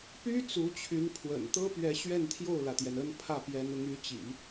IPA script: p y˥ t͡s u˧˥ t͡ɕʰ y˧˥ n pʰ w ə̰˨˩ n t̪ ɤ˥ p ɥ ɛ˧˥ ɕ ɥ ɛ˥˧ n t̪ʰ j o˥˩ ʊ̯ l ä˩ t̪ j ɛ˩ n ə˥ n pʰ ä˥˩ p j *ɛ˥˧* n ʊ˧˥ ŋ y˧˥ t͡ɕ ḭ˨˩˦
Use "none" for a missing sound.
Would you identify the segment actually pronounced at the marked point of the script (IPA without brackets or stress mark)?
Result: ɛ˧˥